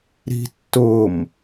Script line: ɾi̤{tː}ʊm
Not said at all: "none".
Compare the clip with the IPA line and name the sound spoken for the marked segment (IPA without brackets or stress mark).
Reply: tː